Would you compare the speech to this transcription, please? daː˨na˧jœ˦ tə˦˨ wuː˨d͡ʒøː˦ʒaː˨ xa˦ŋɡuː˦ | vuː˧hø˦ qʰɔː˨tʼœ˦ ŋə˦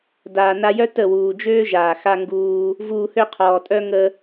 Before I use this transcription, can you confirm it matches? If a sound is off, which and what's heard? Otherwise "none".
none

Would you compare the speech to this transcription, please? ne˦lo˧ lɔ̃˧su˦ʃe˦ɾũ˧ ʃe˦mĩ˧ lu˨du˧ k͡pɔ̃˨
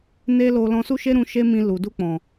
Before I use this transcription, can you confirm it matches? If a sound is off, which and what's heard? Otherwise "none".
none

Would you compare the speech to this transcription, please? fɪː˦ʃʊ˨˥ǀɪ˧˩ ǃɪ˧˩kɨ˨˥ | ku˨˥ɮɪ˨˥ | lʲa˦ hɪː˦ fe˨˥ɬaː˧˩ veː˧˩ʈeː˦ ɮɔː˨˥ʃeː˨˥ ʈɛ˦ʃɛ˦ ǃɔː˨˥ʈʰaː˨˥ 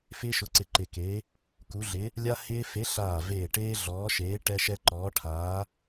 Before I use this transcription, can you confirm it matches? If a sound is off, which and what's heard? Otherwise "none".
ɨ˨˥ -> e˨˥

